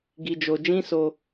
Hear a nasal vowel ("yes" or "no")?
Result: yes